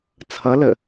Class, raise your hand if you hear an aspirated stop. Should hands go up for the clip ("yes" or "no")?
yes